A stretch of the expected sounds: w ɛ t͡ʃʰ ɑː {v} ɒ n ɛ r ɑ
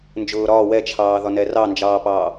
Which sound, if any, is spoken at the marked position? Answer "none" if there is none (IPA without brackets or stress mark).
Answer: ð